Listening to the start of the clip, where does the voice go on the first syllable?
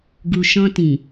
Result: low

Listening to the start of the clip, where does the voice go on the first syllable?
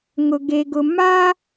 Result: low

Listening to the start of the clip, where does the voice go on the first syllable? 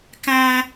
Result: low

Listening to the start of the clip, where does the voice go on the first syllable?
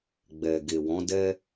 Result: low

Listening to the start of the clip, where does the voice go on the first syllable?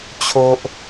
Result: high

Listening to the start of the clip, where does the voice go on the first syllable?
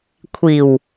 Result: low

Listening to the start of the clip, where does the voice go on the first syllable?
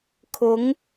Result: rising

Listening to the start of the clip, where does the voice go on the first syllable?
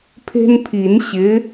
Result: high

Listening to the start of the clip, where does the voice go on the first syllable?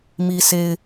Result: low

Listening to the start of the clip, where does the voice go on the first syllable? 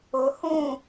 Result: low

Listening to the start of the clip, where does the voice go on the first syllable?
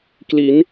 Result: rising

